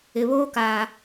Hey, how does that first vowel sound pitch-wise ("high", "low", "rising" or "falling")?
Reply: low